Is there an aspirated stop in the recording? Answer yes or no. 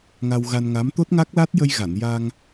no